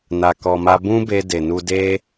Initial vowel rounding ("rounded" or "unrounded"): unrounded